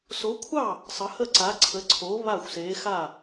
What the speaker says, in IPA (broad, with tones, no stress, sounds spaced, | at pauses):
s o˨˥ kʷʰ ɑ˥˩ | sˤ ə˨˥ h ə˥˩ ǀ a˨˥ ǀʰ ə˨˥ ǀʰ o˨˥ β a˥˩ xʷ s e˨˥ x a˥˩